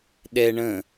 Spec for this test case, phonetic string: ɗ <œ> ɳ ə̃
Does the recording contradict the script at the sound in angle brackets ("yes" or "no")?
yes